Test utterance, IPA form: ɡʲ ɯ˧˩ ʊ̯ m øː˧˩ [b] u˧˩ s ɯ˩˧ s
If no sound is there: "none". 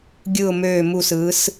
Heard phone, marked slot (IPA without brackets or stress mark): m